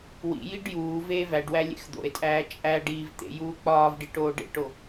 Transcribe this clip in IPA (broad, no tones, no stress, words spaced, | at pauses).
wḭjiɖ juː veːvæɖwæ lʲḛxd̪o̰e̯tʼæː t͡ʃʼæɖiːv t̪ḛjuː k͡pɒːvɖi ʈoːɖḛʈo